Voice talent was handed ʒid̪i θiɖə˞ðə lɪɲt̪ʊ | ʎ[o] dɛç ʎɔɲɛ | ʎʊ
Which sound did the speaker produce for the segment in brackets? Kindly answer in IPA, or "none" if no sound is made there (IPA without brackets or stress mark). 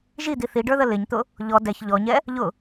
ɔ